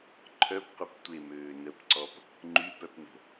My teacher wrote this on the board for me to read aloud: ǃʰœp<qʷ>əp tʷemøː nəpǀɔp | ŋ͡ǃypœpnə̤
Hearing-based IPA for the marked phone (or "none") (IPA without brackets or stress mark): qʷ